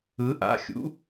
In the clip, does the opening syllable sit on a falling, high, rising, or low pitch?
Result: rising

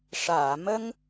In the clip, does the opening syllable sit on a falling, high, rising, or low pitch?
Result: low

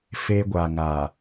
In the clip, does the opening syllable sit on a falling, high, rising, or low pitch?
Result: high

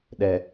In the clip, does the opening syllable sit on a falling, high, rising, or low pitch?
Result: low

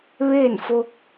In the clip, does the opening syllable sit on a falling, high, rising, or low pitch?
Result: falling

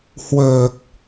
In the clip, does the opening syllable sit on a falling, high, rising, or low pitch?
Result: low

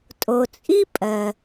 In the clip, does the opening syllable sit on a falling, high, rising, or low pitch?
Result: low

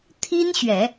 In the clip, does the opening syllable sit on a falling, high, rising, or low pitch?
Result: high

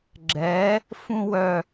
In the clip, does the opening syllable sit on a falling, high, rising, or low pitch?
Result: rising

